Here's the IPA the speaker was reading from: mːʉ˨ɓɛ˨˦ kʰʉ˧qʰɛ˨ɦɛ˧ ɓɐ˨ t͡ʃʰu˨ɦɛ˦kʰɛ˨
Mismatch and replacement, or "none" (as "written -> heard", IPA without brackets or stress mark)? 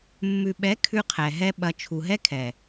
none